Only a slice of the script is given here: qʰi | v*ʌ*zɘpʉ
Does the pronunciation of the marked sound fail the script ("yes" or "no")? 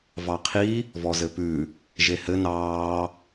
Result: yes